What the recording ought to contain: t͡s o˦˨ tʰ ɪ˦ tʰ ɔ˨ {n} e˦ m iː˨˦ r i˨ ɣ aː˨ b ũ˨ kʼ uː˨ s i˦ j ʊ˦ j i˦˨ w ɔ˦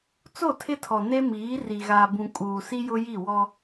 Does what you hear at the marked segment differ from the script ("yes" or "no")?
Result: no